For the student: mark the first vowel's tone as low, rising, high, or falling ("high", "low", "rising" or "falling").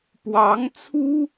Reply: rising